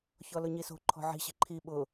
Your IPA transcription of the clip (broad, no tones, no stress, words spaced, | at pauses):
çɔlʊɲiso̤ ǃʰɔ̤ʕi̤ ɕi̤ǃʰi ɓʊ